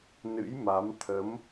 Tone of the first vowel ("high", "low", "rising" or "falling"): rising